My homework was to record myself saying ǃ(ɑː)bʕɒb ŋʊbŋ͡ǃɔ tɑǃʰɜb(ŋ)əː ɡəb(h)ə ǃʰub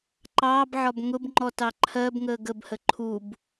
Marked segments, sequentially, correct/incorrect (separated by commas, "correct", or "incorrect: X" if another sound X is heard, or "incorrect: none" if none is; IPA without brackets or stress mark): correct, correct, correct